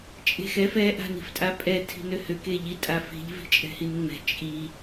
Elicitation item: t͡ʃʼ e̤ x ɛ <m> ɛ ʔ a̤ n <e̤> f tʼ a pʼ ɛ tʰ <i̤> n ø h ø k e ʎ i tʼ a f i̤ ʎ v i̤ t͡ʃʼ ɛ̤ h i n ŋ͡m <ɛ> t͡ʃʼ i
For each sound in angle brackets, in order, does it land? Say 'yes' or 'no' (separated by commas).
no, no, yes, no